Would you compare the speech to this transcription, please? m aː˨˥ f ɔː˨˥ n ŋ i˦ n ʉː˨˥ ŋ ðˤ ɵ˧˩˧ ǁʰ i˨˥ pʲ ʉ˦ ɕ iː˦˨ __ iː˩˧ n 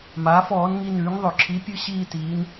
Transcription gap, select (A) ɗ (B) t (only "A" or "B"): B